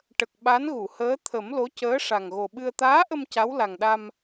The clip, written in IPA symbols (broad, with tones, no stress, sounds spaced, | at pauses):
ʈ ə˨˩ k̚ ɓ a˧˥ n ɣ u˨˩˨ h əː˧˥ t̪ʰ ə˨˩˦ m l o˧˥ c əː˧˥ ʂ a˨˩ ŋ ɣ o˨˩ ɓ ɨ˧ ə̯ t̪ aː˧˥ ʔ ə˧ m c a˧˥ w l a˨˩ ŋ ɗ a˧ m